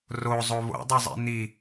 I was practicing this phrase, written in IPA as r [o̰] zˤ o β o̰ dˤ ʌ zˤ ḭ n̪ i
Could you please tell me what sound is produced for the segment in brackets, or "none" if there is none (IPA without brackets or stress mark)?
o